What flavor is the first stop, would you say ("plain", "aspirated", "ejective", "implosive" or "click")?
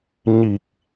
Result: plain